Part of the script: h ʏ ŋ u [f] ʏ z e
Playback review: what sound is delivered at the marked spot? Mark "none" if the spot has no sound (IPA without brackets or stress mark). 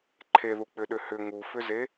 f